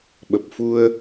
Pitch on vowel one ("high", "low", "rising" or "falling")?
low